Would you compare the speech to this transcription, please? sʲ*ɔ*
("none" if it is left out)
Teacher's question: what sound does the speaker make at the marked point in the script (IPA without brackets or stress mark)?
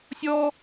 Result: ɔ